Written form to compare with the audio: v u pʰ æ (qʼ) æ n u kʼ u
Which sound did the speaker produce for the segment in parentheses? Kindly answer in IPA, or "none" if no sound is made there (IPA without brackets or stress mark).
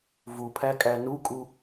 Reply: kʼ